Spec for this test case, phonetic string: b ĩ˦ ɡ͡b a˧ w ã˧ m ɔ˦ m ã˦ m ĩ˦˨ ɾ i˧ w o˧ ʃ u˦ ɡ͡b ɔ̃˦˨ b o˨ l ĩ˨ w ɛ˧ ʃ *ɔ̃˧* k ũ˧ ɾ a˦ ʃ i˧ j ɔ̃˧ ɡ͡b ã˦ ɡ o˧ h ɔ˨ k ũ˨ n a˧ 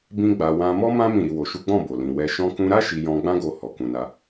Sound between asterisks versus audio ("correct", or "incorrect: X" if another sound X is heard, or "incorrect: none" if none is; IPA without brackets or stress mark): correct